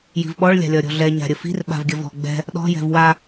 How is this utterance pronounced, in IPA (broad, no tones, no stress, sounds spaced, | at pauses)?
j i̤ v ɓ ɔ ɭ lʲ a̤ lʲ ɒ ɾʲ ɔ̤ ɮ ɛ ɲ a̤ ɾʲ ə f i̤ r ɓ a̤ v ɡʲ ə v ɔ̤ ɡ͡b ɛ̤ | ɗ ɔ̤ j ɛ̤ v w a